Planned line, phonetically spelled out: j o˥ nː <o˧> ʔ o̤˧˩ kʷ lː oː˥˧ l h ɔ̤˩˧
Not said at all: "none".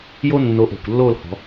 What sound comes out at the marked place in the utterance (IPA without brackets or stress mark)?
o˧